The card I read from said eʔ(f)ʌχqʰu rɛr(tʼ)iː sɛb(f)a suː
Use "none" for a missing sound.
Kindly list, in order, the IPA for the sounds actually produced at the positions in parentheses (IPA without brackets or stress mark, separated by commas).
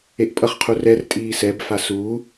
pʼ, tʼ, f